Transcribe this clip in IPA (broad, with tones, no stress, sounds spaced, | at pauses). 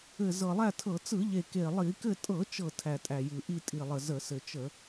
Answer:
ɘ˨˩ z ɤ˨˩ lˠ æ˥˨ tʰ ɤ˧˩˧ t͡s ɯ˧˩˧ ʎ e˨˩ k e˨˩ lˠ i˧˩˧ k ɘ˥˨ tʼ ɤ˧˩˧ t͡ʃ ɤ˨˩ tʰ æ˨˩ tʼ æ˨˩ j ɯ˨˩ ʔ i˥˨ tʼ i˨˩ lˠ ə˨˩ z ə˧˩˧ s ɘ˨˩ t͡ʃ ə˧˩˧